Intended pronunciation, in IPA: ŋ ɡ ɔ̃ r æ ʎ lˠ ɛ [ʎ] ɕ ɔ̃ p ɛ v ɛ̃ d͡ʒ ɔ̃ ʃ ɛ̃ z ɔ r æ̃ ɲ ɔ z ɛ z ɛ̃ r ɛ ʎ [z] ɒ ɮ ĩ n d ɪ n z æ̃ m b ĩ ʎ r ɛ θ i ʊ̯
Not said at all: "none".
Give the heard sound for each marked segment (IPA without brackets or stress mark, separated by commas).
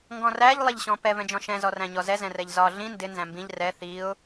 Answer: ʎ, z